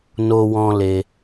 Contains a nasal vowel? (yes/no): yes